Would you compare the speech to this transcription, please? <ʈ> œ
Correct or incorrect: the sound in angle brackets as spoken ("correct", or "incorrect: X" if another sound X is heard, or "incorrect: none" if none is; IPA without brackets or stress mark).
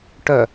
correct